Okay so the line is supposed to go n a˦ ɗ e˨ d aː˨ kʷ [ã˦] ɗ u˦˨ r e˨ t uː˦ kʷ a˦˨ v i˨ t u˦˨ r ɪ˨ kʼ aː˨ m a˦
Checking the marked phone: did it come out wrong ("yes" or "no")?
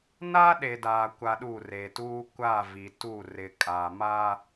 yes